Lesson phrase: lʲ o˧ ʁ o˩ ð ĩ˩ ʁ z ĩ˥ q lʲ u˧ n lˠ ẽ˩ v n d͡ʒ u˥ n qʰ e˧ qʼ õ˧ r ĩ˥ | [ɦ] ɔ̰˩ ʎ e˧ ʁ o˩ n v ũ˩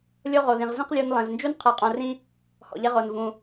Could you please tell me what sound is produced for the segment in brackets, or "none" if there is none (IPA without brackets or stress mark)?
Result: h